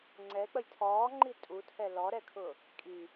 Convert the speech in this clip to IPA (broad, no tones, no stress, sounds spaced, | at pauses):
ŋ͡ǀ ɛ k͡p ə j tʰ ɔː ŋ͡ǃ i tʼ u tʰ ɛ l ɔ ɾ ɛ kʰ ʊ | kʼ i